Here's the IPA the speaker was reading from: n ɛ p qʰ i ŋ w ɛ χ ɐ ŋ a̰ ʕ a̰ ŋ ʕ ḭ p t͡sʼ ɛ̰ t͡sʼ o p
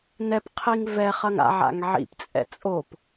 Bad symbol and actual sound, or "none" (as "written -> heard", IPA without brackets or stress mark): w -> v